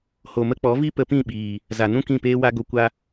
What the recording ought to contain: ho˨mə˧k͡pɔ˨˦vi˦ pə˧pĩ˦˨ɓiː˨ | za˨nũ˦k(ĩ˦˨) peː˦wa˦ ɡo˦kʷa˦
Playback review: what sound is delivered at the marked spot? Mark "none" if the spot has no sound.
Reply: ĩ˦˨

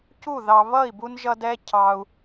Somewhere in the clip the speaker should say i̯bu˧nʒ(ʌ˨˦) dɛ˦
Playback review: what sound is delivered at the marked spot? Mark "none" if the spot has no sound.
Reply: ʌ˧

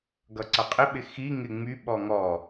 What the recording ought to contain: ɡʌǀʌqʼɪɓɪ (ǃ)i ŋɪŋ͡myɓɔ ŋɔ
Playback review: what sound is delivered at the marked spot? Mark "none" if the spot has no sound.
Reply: x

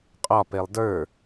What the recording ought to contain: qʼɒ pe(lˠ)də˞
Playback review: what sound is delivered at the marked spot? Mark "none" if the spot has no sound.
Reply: lˠ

